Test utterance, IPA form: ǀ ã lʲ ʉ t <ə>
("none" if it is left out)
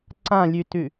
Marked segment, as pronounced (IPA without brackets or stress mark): ʉ